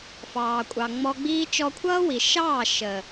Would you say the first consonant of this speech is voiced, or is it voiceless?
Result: voiceless